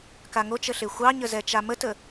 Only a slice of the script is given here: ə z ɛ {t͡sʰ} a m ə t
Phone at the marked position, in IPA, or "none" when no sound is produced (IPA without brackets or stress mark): t͡ʃ